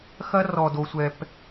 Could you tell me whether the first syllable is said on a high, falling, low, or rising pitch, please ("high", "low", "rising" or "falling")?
high